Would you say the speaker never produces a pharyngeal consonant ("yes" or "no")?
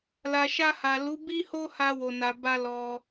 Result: yes